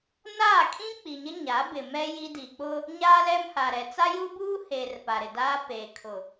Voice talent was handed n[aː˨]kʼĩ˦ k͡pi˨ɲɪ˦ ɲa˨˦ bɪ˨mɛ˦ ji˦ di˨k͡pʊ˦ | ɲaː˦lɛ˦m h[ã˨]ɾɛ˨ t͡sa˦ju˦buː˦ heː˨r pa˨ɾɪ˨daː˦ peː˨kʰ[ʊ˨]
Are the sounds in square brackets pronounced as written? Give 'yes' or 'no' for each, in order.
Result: no, no, yes

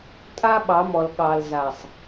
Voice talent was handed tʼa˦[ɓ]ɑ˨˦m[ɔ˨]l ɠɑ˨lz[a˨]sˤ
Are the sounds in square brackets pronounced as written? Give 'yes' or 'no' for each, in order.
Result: yes, yes, yes

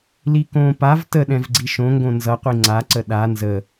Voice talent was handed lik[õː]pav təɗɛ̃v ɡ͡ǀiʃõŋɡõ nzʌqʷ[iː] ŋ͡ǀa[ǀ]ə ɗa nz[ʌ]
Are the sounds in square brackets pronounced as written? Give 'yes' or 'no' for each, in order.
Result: yes, no, yes, no

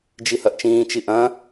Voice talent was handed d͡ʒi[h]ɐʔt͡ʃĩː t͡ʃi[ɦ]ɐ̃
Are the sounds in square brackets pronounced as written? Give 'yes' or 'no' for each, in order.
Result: yes, no

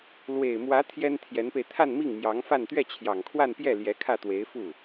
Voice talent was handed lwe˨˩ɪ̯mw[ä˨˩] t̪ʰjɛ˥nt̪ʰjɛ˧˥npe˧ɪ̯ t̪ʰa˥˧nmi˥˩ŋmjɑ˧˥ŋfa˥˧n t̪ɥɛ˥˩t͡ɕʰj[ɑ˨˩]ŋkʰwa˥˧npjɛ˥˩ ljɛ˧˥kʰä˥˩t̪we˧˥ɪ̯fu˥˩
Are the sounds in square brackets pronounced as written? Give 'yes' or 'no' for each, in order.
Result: no, yes

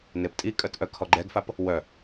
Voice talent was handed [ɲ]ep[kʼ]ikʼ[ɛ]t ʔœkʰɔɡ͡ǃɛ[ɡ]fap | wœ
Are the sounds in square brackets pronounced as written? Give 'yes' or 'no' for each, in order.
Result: no, no, no, yes

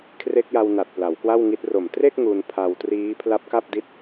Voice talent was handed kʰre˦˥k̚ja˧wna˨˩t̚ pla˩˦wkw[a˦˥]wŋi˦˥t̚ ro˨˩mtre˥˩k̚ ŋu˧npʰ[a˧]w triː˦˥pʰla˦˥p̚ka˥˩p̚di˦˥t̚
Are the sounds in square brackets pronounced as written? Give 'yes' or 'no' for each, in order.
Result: no, yes

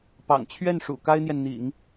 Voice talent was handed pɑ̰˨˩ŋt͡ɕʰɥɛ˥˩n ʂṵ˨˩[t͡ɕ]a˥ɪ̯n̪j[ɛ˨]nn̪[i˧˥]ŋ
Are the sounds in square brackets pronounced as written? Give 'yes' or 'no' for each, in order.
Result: no, yes, no

